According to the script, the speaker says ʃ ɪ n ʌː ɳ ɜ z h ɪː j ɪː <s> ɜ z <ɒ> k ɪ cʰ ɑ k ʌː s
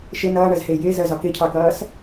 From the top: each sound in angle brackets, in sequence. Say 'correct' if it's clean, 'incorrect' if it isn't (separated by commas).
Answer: incorrect, correct